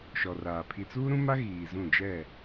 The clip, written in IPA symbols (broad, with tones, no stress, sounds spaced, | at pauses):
ʃ ɔ˨ r aː˨ pʰ i˨ t͡s uː˦ ɾ ũ˦ m a˦ ɣ iː˨ z ũ˦˨ d͡ʒ ɛ˦˨